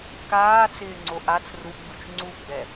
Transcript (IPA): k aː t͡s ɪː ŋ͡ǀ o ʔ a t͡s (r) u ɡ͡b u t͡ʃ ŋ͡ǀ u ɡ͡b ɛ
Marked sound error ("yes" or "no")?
no